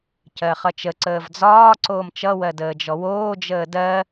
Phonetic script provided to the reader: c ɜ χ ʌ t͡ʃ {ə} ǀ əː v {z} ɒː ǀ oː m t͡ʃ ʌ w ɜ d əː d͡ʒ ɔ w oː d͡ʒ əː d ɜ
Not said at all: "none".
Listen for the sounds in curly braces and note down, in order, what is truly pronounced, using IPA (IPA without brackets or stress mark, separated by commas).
ə, d͡z